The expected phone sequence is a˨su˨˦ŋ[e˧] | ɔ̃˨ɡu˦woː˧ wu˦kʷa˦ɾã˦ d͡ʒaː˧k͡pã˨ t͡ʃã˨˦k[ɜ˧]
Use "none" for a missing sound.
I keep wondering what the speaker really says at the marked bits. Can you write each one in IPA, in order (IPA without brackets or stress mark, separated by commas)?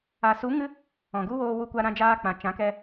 ɨ˧, ɛ˧